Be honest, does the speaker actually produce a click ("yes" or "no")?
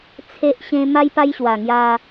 no